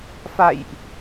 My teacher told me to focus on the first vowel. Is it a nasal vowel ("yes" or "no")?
no